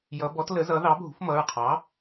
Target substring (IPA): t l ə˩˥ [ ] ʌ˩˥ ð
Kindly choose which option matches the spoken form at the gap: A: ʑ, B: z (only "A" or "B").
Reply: B